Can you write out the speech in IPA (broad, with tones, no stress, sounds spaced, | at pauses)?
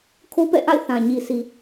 kʰ o˦ p ɛ̰˦˨ ʔ a̰˦˨ ɪ̯ θ ã˨ ɲ i˨ s i˨